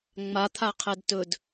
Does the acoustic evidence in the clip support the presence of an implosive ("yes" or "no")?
no